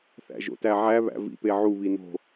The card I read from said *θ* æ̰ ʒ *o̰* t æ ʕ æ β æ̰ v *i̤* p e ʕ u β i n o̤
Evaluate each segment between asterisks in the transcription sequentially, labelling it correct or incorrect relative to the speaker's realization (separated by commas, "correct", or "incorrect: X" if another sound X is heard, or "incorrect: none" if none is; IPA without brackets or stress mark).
correct, correct, incorrect: ḭ